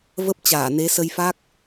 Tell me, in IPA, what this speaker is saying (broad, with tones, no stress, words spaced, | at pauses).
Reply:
və˦˥p̚t͡ɕaː˧˩ ne˨˦ sə˧jfa˦˥k̚